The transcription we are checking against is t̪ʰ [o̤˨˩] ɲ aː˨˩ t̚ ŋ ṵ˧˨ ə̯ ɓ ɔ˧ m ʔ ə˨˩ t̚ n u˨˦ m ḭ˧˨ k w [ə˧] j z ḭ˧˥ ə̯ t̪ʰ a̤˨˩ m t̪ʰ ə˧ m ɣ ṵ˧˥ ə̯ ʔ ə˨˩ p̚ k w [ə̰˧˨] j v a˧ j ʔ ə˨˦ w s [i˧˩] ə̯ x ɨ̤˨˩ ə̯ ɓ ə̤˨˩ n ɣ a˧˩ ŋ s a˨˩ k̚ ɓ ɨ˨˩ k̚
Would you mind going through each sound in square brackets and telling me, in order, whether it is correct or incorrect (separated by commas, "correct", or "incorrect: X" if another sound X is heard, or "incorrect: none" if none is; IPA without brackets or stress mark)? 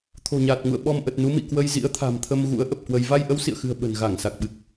correct, correct, incorrect: ə˧, incorrect: ḭ˧˨